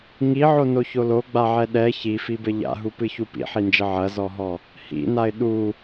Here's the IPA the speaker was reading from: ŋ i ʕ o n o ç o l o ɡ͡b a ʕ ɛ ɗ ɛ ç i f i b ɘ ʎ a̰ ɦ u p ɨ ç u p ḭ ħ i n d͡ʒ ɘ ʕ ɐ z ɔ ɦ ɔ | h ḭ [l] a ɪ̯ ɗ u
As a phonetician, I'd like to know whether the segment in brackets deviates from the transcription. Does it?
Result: yes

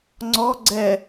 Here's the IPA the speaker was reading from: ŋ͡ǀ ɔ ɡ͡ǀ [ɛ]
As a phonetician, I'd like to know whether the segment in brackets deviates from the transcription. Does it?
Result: no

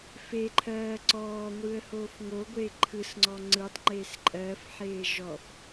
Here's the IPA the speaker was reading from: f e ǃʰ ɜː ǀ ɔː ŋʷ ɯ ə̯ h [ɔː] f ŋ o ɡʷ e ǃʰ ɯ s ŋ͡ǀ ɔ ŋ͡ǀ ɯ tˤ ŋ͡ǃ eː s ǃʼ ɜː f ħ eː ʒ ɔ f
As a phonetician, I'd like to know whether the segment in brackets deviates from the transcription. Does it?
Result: yes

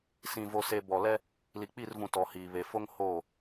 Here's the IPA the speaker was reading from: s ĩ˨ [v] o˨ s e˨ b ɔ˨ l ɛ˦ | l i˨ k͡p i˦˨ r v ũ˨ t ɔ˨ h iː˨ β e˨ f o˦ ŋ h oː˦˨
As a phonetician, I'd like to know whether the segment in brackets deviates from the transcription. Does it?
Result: no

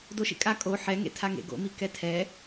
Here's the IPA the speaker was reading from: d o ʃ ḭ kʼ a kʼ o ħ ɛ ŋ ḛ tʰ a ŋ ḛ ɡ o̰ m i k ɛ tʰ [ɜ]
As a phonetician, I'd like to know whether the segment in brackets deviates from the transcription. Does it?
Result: yes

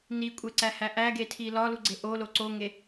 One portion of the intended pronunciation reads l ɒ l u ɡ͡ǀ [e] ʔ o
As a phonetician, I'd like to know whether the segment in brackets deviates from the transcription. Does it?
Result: no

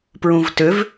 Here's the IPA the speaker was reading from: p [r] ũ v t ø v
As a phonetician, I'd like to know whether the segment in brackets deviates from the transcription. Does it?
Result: yes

